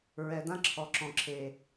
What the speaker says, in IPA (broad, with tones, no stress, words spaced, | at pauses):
ɹɛ˨ dã˦ǁʰɔ˨ǁɔ̃˨ǁʰe˨